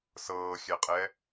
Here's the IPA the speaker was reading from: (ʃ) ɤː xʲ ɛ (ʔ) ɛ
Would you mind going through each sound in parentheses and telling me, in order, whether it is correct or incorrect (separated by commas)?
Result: incorrect, incorrect